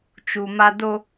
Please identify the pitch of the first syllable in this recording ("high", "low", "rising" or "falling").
low